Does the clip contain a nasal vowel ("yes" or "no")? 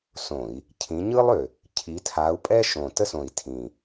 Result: yes